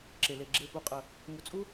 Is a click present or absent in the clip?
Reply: present